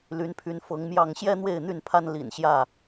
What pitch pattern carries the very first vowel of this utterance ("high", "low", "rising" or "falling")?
rising